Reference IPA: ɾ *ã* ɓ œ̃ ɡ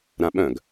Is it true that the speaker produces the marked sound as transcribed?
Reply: yes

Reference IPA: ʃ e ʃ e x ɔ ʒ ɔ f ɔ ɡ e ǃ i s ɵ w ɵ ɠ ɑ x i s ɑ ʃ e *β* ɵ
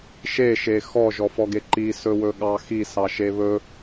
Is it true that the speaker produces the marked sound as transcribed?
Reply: yes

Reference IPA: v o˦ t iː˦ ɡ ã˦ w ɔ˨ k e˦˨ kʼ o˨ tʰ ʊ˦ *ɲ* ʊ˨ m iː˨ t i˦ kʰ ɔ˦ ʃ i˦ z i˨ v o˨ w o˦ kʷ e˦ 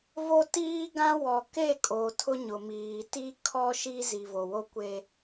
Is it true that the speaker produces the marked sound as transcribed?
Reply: yes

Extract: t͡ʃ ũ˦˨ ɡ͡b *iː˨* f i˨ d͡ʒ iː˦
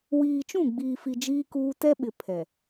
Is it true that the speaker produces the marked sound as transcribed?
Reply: yes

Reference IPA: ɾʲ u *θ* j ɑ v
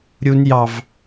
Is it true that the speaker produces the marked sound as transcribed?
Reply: no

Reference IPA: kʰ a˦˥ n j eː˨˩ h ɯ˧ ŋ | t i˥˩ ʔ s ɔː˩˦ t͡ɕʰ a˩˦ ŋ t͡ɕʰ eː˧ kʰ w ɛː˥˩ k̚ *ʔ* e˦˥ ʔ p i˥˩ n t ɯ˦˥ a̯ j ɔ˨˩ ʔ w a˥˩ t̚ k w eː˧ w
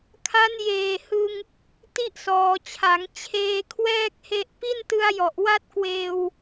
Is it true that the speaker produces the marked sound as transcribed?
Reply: no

